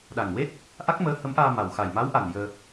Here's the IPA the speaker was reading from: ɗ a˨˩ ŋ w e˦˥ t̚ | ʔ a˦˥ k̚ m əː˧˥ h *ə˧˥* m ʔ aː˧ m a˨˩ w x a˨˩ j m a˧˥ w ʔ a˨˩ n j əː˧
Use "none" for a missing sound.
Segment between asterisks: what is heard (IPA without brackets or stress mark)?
ə˧˥